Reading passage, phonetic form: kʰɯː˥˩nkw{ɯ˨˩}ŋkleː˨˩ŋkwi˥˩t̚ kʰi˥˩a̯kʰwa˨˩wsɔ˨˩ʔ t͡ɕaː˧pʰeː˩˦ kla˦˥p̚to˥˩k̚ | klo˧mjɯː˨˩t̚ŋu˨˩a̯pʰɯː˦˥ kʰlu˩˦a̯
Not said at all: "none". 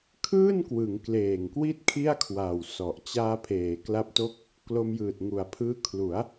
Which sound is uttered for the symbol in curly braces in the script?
ɯ˩˦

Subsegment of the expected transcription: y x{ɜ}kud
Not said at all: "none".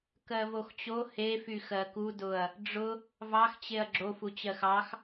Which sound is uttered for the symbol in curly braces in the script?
ɜ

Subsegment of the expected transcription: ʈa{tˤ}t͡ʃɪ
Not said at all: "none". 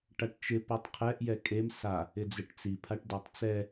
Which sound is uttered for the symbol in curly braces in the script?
ʈ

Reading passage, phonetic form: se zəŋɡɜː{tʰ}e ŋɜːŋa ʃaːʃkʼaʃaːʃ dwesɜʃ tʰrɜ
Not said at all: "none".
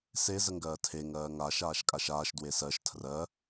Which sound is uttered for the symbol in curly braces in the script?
tʰ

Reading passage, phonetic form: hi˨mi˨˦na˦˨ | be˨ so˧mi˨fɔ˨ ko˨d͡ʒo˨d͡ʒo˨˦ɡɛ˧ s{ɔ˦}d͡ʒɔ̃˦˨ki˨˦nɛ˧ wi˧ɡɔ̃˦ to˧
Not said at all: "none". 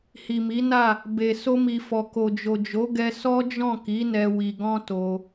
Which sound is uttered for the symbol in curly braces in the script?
ɔ˦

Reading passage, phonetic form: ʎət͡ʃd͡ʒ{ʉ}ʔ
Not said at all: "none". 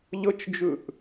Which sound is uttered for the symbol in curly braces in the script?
ʉ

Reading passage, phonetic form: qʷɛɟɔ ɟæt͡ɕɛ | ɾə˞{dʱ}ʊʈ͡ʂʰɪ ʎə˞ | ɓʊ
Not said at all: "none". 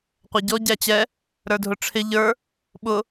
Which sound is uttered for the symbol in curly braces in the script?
dʱ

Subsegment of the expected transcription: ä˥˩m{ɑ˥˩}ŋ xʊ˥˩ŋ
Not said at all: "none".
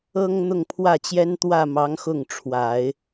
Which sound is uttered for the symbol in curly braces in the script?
ɑ˧˥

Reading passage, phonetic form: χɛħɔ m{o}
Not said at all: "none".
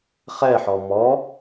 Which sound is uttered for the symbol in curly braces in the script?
ɔ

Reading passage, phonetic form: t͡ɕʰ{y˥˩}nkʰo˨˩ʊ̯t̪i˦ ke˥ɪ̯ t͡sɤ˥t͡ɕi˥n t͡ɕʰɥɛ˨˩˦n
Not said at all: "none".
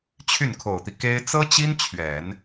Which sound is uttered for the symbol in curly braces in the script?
y˥˩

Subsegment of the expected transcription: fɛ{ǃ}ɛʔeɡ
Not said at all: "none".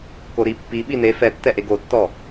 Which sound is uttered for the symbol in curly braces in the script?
tː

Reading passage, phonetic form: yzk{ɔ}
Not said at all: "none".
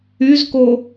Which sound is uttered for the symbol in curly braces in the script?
o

